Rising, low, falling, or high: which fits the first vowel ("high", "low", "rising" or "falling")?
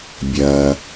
low